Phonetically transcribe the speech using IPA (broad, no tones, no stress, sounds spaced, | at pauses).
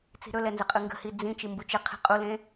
t͡s i̤ ɾ ɵ l ɛ n z ə qʼ ɯ ŋ ɡ ə̤ h i d͡z ĩ t͡ʃ i m b u t͡ʃ ə qʰ i̤ qʼ u l ẽ